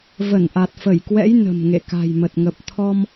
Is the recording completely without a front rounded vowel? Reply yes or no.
yes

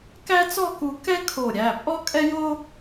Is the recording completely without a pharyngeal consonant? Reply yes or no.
yes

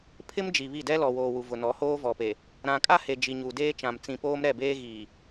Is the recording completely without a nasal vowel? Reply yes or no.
no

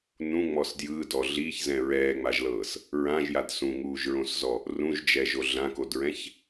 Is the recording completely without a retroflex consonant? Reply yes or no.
yes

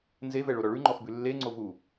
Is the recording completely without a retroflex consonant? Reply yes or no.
no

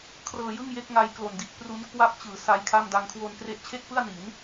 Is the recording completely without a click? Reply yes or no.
yes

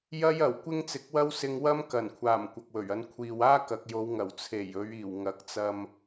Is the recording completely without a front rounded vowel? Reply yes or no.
yes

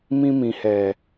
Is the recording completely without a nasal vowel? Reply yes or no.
no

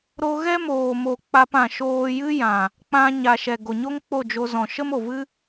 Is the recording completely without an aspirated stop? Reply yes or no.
yes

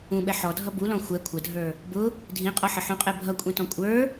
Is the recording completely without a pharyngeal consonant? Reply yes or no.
no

